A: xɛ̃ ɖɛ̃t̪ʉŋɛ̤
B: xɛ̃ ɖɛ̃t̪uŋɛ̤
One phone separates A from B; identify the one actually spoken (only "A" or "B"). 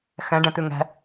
A